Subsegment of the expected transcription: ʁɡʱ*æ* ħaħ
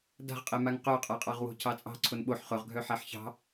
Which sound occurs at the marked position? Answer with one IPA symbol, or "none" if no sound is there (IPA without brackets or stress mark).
œ